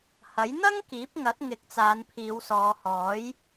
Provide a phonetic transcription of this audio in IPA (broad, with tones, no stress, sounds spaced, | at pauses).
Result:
h ɐ˨˥ j n̪ ɐ˥ ŋ k iː˨˥ p̚ ŋ ɐ˨˥ t̚ ŋ ɪ˨˥ k̚ t͡s aː˨˧ n pʰ iː˨˧ w s ɔː˨˧ h ɔː˨˥ j